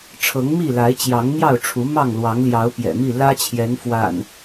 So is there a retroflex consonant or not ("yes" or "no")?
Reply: yes